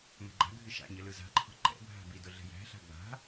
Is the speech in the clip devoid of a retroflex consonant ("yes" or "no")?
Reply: yes